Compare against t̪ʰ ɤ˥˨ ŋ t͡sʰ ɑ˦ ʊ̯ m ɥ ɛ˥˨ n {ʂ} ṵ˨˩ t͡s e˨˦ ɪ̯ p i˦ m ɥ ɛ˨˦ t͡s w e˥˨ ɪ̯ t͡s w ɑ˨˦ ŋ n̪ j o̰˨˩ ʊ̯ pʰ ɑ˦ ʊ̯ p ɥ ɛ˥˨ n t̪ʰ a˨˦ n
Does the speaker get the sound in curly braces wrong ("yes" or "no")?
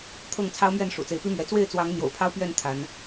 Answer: no